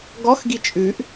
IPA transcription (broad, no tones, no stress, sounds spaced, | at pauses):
ɡ ɔ x ɡ i t͡ʃʼ ʉ ʔ